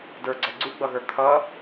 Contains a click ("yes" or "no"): yes